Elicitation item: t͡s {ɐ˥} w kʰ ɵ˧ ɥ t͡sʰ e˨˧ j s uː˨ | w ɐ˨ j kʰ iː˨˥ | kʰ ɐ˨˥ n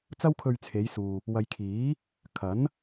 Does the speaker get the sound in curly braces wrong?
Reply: no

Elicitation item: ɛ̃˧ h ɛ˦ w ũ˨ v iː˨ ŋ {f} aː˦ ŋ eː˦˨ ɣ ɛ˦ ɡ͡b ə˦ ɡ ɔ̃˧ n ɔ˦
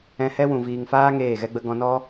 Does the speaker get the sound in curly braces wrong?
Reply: no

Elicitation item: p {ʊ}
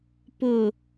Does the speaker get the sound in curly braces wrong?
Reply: no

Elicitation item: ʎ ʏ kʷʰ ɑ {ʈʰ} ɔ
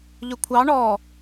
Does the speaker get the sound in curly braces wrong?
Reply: yes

